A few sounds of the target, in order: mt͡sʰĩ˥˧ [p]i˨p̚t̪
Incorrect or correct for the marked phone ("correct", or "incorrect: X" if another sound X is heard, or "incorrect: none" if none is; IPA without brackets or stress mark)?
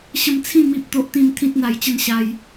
incorrect: m